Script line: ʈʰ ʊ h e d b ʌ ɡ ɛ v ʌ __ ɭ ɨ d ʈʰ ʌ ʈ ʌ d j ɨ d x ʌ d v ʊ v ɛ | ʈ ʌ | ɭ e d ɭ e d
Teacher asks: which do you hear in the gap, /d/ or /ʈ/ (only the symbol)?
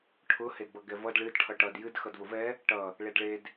d